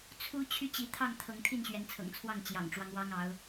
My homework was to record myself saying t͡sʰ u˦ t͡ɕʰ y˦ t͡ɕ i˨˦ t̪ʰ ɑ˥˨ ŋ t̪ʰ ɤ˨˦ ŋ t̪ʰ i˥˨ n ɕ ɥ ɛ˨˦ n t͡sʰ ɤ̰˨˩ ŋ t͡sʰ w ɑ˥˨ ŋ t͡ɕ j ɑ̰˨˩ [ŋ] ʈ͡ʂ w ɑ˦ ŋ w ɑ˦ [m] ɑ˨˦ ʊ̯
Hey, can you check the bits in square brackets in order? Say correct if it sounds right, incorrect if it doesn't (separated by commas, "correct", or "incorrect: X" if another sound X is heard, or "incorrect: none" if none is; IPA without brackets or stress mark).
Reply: correct, incorrect: ŋ